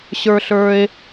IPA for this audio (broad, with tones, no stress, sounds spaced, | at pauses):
ɕ ə˞˥ ɬ ə˞˥ e̯